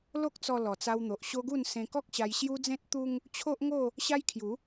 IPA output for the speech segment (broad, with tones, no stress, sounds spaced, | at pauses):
l o˦ k̚ t͡s ɔ˧ l ɔ˨˩ t͡s a˧ w n̪ o˨ ʔ ɕ o˦ ɡ u˥˧ n s ẽ˧ k ɔ˦ k̚ ɕ a˧ j ɕ j u˦ d͡z ẽ˦ t̚ t̪ u˦ ŋ | t͡ɕʰ o˦ ʔ ŋ o˥˧ | ɕ a˦ j kʰ j u˨˦